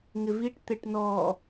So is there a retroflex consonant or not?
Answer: yes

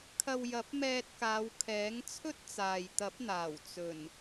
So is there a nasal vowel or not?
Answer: no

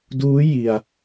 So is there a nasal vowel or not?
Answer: no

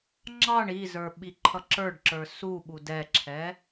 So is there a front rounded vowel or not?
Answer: no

